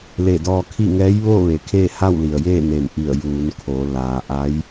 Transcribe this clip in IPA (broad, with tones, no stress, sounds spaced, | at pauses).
l e˧˩ d ɔː˧ kʰ i˥˨ ŋ ɛː˧˥ j ʋ oː˥˨ ʋ e˩˧ kʰ eː˥˨ h a˥˨ w l i˩ ə̯ j eː˥˨ n e˧˩ m ʔ i˧˩ ə̯ j uː˩˧ n kʰ o˩˧ l aː˩ ʔ a˧˥ j